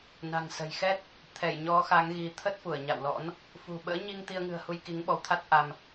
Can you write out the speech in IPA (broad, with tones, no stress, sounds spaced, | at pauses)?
n a̤˨˩ ŋ s ə̤˨˩ j x ɛ˦˥ t̚ | t̪ʰ ɛ˧˩ j ɲ ɔ˨˦ x a˨˦ ŋ ɣ i˨˦ t̪ʰ ə˦˥ t̚ f u˧˩ ə̯ ɲ a̰˧˨ w l ɔ̰˧˥ n | f ṳ˨˩ ɓ ə̰ː˧˥ ɲ i˧ ŋ t̪ i˧ ə̯ ŋ ɨ̤˨˩ ə̯ h u˧ j k i˨˦ ŋ ɓ ɔ˨˦ w t̪ʰ a˦˥ t̚ ʔ a˧ m